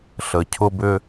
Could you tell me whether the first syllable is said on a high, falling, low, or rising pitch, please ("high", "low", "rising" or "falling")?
low